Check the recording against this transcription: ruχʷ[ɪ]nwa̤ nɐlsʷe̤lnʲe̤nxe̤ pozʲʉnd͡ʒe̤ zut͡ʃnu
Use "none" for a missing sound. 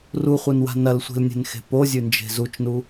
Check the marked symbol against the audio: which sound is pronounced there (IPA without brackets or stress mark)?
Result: ɨ